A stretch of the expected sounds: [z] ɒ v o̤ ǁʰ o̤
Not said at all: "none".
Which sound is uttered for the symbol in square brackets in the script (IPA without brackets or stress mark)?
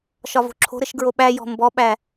ʃ